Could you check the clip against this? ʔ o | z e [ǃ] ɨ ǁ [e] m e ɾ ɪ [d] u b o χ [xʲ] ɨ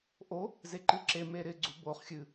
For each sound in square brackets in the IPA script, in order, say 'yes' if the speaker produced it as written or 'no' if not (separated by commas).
yes, yes, no, yes